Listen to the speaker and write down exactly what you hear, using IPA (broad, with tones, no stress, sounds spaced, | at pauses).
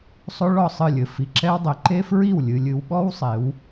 sˤ o˦ ɭ ɔ˦˨ sˤ ɨ˦˨ lʲ ɘ˨ f i˨ ǁ ɛ˦ w dˤ ɘ˨˦ ǃ e˦ f ɹ i˦˨ w lʲ ɨ˨ lʲ ɨ˨ w ɓ ɔ˦ w sˤ e˨˦ w